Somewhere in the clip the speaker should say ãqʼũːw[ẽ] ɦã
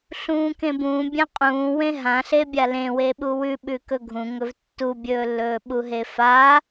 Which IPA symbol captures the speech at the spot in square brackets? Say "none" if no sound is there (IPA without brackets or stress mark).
ẽ